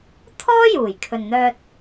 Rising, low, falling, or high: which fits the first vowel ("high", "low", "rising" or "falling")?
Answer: high